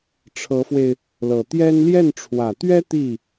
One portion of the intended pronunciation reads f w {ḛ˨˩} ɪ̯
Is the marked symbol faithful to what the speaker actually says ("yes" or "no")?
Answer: no